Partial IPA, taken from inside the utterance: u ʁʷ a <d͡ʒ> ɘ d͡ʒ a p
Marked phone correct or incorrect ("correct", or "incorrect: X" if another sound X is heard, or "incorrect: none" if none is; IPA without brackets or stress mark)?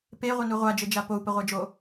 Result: correct